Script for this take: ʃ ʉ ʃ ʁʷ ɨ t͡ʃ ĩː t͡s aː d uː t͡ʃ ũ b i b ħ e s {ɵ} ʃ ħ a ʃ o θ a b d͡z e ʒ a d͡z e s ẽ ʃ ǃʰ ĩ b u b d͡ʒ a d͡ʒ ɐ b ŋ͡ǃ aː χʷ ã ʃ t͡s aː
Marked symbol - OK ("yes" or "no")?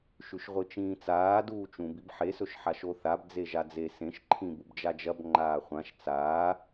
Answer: yes